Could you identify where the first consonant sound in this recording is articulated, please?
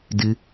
alveolar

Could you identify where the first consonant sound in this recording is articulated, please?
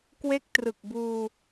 velar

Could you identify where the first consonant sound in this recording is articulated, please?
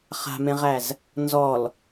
uvular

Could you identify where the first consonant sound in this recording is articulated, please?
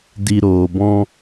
alveolar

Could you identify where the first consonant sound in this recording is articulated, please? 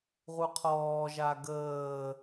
uvular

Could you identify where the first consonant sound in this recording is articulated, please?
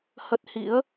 glottal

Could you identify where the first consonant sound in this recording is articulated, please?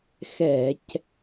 velar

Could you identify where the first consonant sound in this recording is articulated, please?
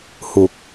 glottal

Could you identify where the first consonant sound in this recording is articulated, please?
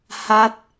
glottal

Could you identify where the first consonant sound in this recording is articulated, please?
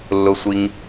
alveolar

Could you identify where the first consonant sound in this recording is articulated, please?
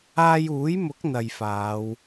palatal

